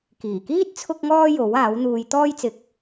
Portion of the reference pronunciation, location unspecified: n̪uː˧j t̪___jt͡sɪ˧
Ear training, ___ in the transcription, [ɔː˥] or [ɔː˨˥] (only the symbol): ɔː˥